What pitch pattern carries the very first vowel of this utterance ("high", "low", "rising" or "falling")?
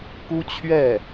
high